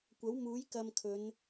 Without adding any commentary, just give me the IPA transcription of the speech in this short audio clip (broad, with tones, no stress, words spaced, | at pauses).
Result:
kʷɐ˨˥wmuː˨˥jkɐ˧mkʰɵ˨˧n